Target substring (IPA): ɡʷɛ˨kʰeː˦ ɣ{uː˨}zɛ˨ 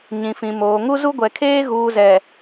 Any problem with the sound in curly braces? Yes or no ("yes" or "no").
no